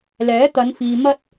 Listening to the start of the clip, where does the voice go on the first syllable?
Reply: rising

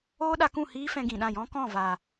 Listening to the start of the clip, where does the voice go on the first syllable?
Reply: high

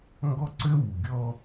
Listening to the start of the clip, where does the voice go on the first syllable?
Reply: high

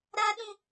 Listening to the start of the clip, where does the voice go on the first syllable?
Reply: high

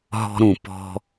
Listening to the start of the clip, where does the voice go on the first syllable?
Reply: high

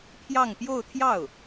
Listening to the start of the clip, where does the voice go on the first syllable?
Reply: falling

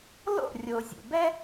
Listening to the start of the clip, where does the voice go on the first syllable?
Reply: falling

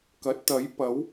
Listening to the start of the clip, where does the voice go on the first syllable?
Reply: rising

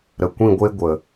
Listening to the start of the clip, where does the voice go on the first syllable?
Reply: low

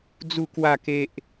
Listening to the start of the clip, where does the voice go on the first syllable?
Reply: falling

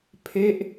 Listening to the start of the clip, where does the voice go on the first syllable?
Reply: falling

